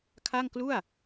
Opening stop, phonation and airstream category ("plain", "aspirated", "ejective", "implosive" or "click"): aspirated